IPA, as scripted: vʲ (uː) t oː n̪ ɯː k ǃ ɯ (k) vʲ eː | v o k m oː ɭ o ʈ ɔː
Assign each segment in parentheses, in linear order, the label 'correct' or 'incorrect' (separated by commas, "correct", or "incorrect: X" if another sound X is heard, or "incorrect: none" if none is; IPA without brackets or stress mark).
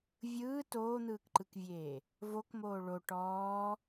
incorrect: ɯː, correct